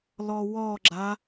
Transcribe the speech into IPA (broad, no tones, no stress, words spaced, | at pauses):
lɔwɔɡ͡ǁa